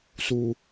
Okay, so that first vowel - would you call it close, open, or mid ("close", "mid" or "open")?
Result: close